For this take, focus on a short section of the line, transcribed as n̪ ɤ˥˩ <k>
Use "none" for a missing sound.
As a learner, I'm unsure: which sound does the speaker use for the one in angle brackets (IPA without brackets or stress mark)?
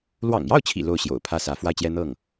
ŋ